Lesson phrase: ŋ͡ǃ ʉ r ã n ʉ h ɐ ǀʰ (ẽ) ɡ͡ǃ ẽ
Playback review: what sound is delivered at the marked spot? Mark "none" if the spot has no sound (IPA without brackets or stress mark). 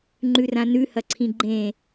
ĩ